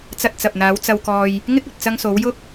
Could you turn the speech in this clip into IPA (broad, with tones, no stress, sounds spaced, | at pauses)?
t͡s ɐ˧ t̚ t͡s ɐ˨ p̚ n̪ aː˨˧ w t͡s ɐ˧ w k ɔː˧ j | ŋ ɪ˥ k̚ ɵ˨ t̚ t͡s ɐ˧ ŋ s o˨˧ w j ʊ˥ k̚